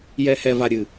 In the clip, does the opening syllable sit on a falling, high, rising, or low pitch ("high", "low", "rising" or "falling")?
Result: low